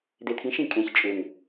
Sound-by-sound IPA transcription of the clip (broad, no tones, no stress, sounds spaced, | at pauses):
d̪ e t̪ʰ ĩ ʃ ĩ kʼ ẽ ç t͡ʃʼ ʏ ŋ